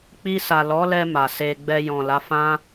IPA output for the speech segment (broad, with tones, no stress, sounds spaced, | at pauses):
k͡p i˧ s a˨ l ɔ˨˦ l ɛ˧ m a˨ s e˧ ɡ͡b ɛ˧ j ɔ̃˨ l a˨˦ f ã˦